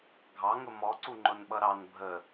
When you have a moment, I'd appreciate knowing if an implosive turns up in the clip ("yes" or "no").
yes